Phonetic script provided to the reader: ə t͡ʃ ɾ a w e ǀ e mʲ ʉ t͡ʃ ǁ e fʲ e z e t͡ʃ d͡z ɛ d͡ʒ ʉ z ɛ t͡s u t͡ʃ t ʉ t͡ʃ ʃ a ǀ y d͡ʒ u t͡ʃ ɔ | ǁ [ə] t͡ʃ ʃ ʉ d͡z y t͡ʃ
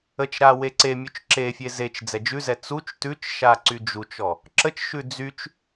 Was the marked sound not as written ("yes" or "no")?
no